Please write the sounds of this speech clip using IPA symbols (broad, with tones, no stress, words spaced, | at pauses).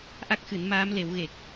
ʔa˦˥k̚xɨ˨˩˦nmaː˧˥m le˨˩˦w ɣe˨˩k̚